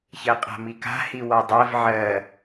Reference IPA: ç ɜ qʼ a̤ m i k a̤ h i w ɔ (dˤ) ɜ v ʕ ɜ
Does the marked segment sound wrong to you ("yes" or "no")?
no